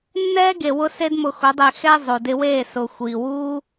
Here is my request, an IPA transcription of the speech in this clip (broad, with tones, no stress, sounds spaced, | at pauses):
nː ɛː˦ ɡ e˨ w ʊ˧ s e˦ d m ʊ˧ x ʊ˨˦ dˤ e˧ x ɛ˧ zˤ o˨ d ɪ˧ w eː˦˨ s ʊ˨ xʷ iː˨ w uː˦